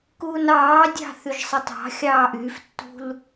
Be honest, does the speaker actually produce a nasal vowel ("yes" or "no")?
no